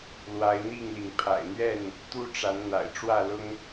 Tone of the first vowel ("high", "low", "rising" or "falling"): rising